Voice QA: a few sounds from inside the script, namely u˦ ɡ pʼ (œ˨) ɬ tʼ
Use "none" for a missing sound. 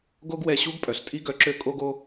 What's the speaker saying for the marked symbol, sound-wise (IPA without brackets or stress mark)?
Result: œ˨